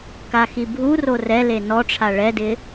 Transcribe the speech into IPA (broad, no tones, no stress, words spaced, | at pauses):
kaxibʱuro rɛle nɔʈ͡ʂʰa ɭɛdɪ